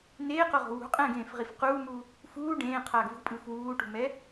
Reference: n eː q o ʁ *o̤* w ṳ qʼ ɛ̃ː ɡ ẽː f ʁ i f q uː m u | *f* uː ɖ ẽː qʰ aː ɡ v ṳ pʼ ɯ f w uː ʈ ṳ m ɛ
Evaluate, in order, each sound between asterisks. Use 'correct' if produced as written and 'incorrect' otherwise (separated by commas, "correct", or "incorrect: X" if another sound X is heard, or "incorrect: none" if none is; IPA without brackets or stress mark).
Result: correct, correct